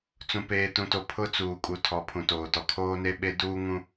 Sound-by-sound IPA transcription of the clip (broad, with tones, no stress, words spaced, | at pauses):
t͡sũ˨peː˨tũ˨to˨ pʰʊ˦ t͡suː˨kʼu˨ tʰɔ˨˦pʰũ˨toː˨tɔ˨ kʰoː˦ne˦ ɓe˦ duː˦ŋũ˦